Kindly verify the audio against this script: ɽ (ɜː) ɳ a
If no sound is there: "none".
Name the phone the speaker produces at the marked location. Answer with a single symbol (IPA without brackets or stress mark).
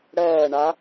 ɜː